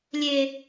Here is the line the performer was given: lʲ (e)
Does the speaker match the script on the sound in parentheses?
yes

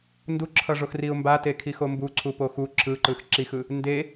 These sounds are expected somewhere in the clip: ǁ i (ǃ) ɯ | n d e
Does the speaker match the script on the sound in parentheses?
no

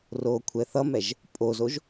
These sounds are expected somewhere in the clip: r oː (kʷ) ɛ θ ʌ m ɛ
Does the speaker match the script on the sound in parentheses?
no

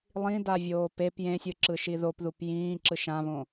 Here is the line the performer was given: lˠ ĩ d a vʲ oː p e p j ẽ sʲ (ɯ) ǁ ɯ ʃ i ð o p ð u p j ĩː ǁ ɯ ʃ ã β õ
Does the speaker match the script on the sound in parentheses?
yes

